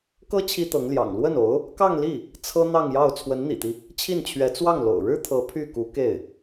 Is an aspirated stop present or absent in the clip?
present